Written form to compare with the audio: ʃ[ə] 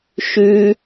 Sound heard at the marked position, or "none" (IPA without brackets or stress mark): ʉ